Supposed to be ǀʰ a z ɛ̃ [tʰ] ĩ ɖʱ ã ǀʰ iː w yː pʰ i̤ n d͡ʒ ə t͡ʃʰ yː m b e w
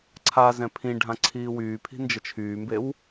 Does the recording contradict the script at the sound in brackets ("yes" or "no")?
yes